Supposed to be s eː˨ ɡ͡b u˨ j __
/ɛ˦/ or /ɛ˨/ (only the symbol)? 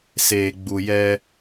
ɛ˦